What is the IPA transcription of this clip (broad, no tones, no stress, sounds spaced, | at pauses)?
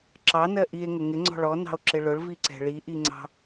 ǁ ɑ n ɜ ʔ i e̯ ŋ ə ŋ ɪ ŋ͡ǀ ɔ̤ ɭ ɔ n ɑ̤ o̯ ǁ ɪ ɭ ʊ ɭ v i ǀ ɛ̤ ɭ i ʔ i ŋ͡ǀ ɑ̤